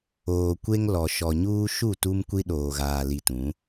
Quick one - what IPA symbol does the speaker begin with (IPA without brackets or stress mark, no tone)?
oː